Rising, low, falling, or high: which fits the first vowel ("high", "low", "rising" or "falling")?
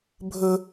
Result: high